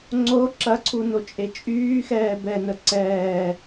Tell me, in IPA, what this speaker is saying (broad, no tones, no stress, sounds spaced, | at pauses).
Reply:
ŋ͡ǀ o ǁ ɐ ǀʰ u n o t͡ʃʼ e t͡ʃʼ yː x ɛː b ɛ n ə ǀ ɛː